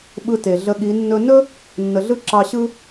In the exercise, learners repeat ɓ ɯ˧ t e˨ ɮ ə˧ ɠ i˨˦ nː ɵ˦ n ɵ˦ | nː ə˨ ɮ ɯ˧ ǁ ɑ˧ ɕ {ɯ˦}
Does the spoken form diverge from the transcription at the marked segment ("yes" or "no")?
no